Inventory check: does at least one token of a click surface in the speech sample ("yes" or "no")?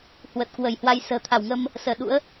no